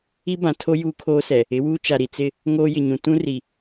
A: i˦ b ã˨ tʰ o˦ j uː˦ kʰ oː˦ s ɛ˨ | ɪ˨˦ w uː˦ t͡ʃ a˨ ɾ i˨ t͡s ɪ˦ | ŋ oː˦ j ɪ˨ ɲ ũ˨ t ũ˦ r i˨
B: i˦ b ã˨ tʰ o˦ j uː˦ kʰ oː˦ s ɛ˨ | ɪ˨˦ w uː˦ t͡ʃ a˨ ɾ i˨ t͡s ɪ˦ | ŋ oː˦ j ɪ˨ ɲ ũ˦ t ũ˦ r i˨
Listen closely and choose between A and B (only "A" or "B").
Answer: A